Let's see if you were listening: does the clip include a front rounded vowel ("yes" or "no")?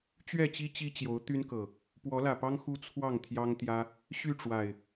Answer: yes